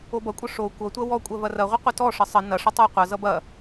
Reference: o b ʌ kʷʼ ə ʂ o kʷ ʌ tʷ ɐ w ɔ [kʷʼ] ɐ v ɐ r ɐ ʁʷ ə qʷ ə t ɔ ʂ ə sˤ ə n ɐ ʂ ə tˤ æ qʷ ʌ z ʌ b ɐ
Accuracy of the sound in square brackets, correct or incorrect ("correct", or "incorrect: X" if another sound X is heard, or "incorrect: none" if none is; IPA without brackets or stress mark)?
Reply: correct